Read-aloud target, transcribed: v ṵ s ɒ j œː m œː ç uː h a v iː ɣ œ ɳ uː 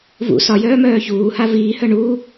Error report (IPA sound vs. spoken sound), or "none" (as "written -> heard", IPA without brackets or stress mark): ɣ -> h